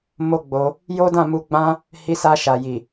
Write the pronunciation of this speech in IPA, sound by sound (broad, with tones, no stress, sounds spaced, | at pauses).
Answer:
m o˦ ɡ͡b o˧ | j o˦ d ã˦˨ m u˧ ɡ͡b ã˦ | h i˧ s a˧ ʃ a˨ j i˨